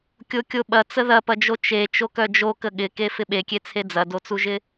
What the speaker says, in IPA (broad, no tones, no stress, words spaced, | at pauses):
kʲokʲoɓɐ t͡səðɐpɐd͡ʒo t͡ʃe t͡ʃokœd͡ʒo kəɠɪke fɪɓekʲet͡sʰe d͡zɐdot͡suʒɪ